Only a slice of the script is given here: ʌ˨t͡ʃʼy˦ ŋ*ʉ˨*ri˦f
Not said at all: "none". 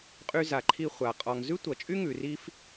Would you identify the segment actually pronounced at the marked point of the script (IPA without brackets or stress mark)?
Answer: ʉ˨